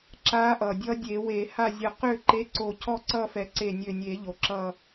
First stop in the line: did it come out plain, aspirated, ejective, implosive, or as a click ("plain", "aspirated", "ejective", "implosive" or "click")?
click